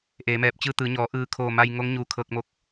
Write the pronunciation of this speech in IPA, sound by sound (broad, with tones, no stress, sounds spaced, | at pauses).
ʔ eː˩˧ m ɛː˧˩ p̚ t͡ɕ ɯː˧ t̪ ɯː˩˧ ɲ ɔː˩˧ ʔ ɯː˧˩ kʰ oː˧˩ m a˧ j ŋ o˧˥ ŋ ɲ u˧˩ kʰ ɤː˧ k̚ m o˧ k̚